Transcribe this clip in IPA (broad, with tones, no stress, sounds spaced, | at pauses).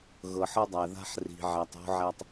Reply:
ɣ ɤ˨ ħ ɤ˦ dˤ æ˨ ð a̤˦ ħ r i̤˨ ʕ æ˨ tˤ o̤˦ ʕ æ˦ tˤ